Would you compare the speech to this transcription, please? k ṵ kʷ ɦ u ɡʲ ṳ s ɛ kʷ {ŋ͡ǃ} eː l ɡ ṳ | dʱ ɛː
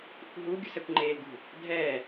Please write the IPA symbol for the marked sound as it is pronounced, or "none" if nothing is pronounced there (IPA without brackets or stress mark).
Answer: ŋ͡ǃ